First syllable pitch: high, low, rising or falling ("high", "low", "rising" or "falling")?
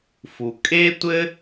low